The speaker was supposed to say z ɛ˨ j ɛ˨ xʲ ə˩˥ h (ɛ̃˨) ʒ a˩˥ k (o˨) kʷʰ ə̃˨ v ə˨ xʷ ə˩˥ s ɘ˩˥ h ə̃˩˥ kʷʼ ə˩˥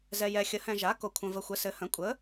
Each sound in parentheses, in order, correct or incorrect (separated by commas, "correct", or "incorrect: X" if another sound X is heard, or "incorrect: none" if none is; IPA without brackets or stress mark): correct, correct